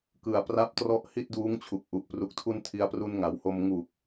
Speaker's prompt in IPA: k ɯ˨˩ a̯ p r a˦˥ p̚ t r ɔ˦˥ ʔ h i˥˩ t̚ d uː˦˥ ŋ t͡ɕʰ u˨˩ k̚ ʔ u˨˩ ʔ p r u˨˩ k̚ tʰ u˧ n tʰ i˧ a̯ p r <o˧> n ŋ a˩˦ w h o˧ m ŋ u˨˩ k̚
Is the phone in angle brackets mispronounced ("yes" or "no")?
yes